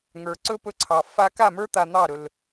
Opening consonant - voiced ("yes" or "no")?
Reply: yes